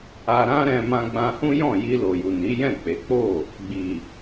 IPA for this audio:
a˧ ɾ ã˦ ɾ ɛ̃˧ m ã˧ ɡ͡b ã˧ h ũ˦ j ɔ̃˦˨ j i˧ l o˨ j u˨ n i˨˦ j ɛ̃˦˨ k͡p e˨˦ k͡p o˦˨ | ɡ͡b i˨

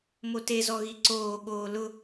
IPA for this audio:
m o t e z ɔ ɣ i ǀ oː ɠ oː l ʊ

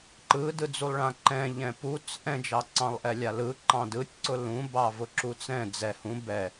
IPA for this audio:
ǃ ɯ d ɯ d͡z u lˠ ɭ ã ǃ ɛ̃ ʎ ɛ̃ p u t͡s ʔ ɛ̃ d͡ʒ ɑ ǀ ɑ̃ lˠ ʔ ɛ lʲ a l ɯ ǃ ɑ̃ d ɯ tʲ ǀ ʊ l ũ b ɑ v ʊ ǁ u t͡s ɛ̃ d͡z ɛ h ũ b ɛ

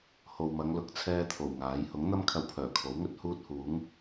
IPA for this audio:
h o˨ w m ɐ˨˧ ŋ l ʊ˨˥ k̚ t͡sʰ ɛː˥ t̪ʰ o˨˩ w ŋ aː˨˥ j h ʊ˨˥ ŋ n̪ ɐ˥ m kʰ ɐ˧ w pʰ œː˨˩ kʰ o˨˥ w ŋ ɵ˥ t̚ h uː˥ t̚ h uː˨˥ ŋ

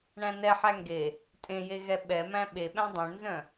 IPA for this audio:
ɳ æ̃ n ɛ ħ æ ŋ ɡ e | tʼ ẽ j e ɣ ɛ ɓ ɛ m æ̃ ɓ e ɓ æ̃ dˤ œ̃ ɳ n z œ̃

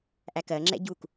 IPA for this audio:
ʔ æ k ɜ ŋ͡ǁ ɛ̰ ɟ u k

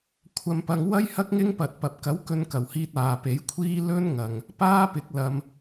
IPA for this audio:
kʷʰ ɐ˧ m p ɐ˧ ŋ w ɐ˥ j h ɐ˥ k̚ ŋ ɪ˥ ŋ p ɐ˨ t̚ p ɐ˨ p̚ k ɐ˨˥ w k ɵ˧ n k ɐ˨˩ w h iː˧ t̚ aː˨ p e˨˥ j kʷʰ iː˥ l ɵ˥ n ŋ ɐ˨ ŋ | p aː˥ p ɪ˨˥ k̚ l ɐ˧ m

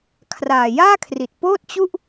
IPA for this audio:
kʰ r aː˨˩ j aː˥˩ kʰ r i˨˩ t̚ p oː˥˩ t̚ t͡ɕ u˥˩ ʔ

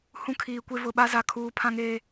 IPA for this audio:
h ũ˦ kʰ iː˨ kʷ e˦ v ʊ˨ ɓ a˦ z a˨ kʰ uː˨ pʰ ã˦ ŋ eː˦

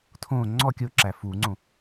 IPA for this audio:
tʰ õ ŋ͡ǀ ɔ kʲ ʊ ǁ æ f u ŋ͡ǀ õ

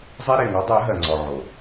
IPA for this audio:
zˤ e˦ ɾ e˨ ŋ ɔ˨˦ dˤ ɜ˨˦ ɦ ɜ˨ ŋ͡ǀ ɔ˨ ʕ o˨

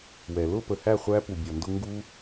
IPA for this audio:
w ɛ˨ l ʊ˦˨ p ə˨ h æ˦˨ χʷ æ˦ p u˨ bʲ ʌ˨ n d ʊ˦ ŋ ɡ u˦

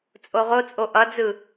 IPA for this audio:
t͡sʼ o ʁ o t͡sʼ o ʔ ʌ d͡z ɯ

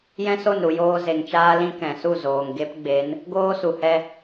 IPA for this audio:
j ɛ̃˦ s o˦˨ n ɾ u˨ j oː˧ z e˨ ŋ t͡ʃ aː˦ l ĩ˦ k ɛ̃˨ s u˦˨ z oː˨ ŋ ɡ e˦ p ɡ͡b e˨˦ n | ɡ oː˦ s u˨ h ɛ˧

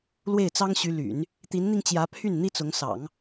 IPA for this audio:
l w e˥˩ ɪ̯ t͡s ɑ˥ ŋ ɕ y˧˥ l y̰˨˩˦ n | t̪ i˧˥ n n̪ i˧ ŋ t͡ɕ j ä˧˥ pʰ y˥˩ n n̪ i˥ t͡s ʊ˧˥ ŋ s ɑ̰˨˩˦ ŋ

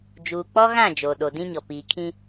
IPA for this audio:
d͡ʒ uː˨ k͡p ɔ˦ ɣ ã˦˨ d͡ʒ oː˨ ɗ o˨ d ĩ˦ ɲ ɔ˨ p iː˨ kʰ ĩ˦

